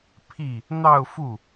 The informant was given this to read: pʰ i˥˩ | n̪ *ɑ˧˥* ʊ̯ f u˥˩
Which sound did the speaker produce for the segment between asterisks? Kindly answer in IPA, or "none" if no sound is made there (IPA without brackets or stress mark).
ɑ˥˧